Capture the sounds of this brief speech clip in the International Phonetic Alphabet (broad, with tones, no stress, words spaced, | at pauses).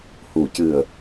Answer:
hu˨˩cɨ˨˩ə̯